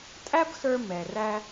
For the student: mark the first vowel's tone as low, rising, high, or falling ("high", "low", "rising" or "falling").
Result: high